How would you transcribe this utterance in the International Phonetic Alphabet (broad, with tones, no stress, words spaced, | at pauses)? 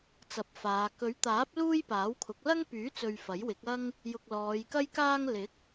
t͡sɐ˨˥p̚faː˨˧ kɵ˨˥ɥt̪aː˨˥p̚ luː˥jpaː˨˥wkʰʊ˨˥k̚ lɐ˥ŋpyː˨˥t͡sɵ˨ɥ fɐ˨˥jwɪ˨˥k̚ɐ˥ŋ | jʊ˨k̚ lɔː˨˧jkɐ˥jkaː˥ŋ lɪ˨˥k̚